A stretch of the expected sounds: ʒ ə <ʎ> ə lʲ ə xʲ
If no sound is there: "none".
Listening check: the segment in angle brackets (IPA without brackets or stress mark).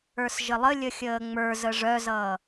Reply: lˠ